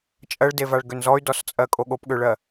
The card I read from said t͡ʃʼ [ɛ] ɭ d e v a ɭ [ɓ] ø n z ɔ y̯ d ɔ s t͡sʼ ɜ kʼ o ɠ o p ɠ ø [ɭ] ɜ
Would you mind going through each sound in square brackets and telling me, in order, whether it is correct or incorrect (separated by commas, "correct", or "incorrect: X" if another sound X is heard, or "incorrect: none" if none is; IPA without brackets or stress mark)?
incorrect: ɜ, incorrect: ɡ, correct